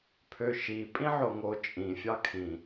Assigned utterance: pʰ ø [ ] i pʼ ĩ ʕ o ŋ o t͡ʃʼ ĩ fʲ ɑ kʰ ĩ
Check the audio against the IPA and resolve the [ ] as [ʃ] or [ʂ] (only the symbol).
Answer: ʃ